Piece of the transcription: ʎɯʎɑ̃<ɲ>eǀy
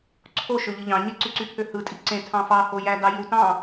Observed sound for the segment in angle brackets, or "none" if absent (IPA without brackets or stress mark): ɲ